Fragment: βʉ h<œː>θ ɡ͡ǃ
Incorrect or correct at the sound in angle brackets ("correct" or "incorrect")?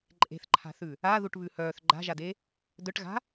correct